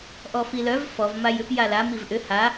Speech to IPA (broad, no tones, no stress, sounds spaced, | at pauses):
ʔ ɔ f i l œ v f ɔ v m a j ʏ p j a l a m i v ʔ ʏ h a